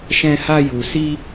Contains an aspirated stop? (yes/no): no